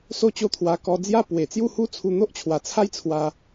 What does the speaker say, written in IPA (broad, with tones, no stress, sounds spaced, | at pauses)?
s o˥˧ t͡ɕ o˦ t̪ʰ w a˧ k ɔ˧ d͡z j a˦ p w e˨˩ t͡s j u˥˧ h u˦ t͡sʰ u˧ n̪ o˦ ʔ t͡ɕʰ w a˨˩ t͡sʰ a˦ j t͡sʰ w a˧